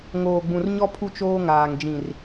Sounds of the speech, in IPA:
ŋoː˨ɡ͡bũ˨rɲɔ˦ pʰu˦t͡ʃoː˦ŋaː˨ŋ d͡ʒĩ˨r

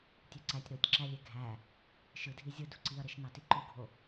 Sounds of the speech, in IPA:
tʲøǀætʲ ɾotʲǁælʲe ɡʱæ | ʃɯdʱi zʲɯ duǀiɐ̯ɾeʃnɑ tiǃuɡʱo

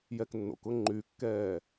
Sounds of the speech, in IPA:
jɛknːo̰kʊ ŋ͡ǃykːɛː

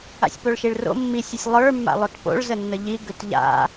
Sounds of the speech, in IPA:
a̰sʲpoɭʃiɭro̰ mːisʲ əsʲlˠə˞ mːa̰lˠotpo̰ɭ zənːəʎi ɡʏtʎa̰

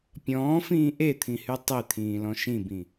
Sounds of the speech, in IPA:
pʲɔ̃ːfĩː ʔet̪ʰĩhy tˤet̪ʰĩːlɔ̃ ʃĩbĩ

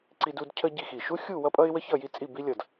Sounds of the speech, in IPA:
ǀi˥du˥d cʰə˥ ɟi˥˧xi˧˩ ʃu˥xʲu˥˧ wʌ˥pʼʌ˥ɪ̯ wə˥çʌ˥˧ ji˥t͡sʼi˥˧bi˥ lʲʌ˧˩d

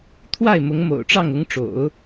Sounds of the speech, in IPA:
t̪ʰwa˥˩ɪ̯mʊ˧˥ŋ mo̰˨˩ʊ̯ʈ͡ʂɑ˥˩ŋ ʊ˧˥ŋʈ͡ʂo̰˨˩˦ʊ̯

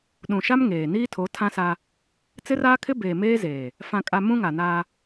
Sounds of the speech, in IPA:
ɗũ˨ʃa˦m ŋeː˨ niː˦tʰo˨˦ tʰã˦sa˦ | t͡sɪ˦raː˦kʰɪ˦ beː˨ meː˦zeː˨ | fã˨kʼa˨ mũ˦ŋa˨naː˦

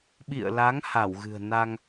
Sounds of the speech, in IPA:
ɓḭ˧˨ə̯la˨˦ŋ ha˧˩wɣɨ̤˨˩ə̯ na˧ŋ

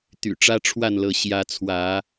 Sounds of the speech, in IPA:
t̪y̰˨˩ʈ͡ʂä˦ʈ͡ʂʰwa˥˨nlɤ˨˦ ɕjä˨˦t͡sʰwä˨˦

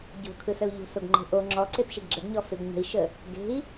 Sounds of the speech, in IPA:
ɟo̤kʰɯsəu̯ ʎo̤soɡŋ͡ǃe̤ʔo ŋ͡ǁɔ ǀepʃeɡɡ͡ǁəɡɲɔ feɡɲə̤i̯ʃə | ɡe̤i̯

